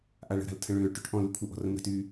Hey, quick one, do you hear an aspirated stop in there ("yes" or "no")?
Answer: yes